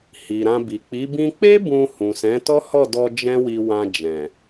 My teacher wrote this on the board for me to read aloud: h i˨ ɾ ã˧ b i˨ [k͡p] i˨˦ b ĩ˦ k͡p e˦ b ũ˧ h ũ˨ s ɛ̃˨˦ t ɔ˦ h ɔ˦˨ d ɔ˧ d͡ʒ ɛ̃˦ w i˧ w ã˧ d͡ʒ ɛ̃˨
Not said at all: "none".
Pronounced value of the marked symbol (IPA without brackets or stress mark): k͡p